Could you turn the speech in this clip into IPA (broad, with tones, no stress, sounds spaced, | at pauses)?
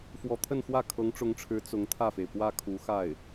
f w ɔ˧˥ t̪ʰ ə˥˧ n x w ä˥˩ kʰ ɤ˧˥ ŋ ʈ͡ʂ ʊ˧˥ ŋ ʈ͡ʂʰ ɻ̩˧˥ t͡s ʊ˧˥ ŋ t̪ʰ ä˥˩ f e˩ ɪ̯ p w ä˥˩ kʰ u˧˥ x a˥˩ ɪ̯